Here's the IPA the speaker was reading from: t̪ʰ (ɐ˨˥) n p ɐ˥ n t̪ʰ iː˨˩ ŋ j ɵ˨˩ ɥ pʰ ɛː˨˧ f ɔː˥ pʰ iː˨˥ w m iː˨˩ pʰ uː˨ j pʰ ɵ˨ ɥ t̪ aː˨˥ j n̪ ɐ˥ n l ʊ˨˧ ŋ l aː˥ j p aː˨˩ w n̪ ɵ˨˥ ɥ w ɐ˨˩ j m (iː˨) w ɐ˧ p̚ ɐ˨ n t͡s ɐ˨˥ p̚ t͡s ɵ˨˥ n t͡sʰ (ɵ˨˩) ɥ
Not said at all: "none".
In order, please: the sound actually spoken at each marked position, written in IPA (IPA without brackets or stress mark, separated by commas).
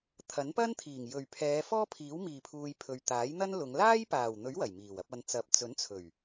ɐ˨˥, iː˨˩, ɵ˨˩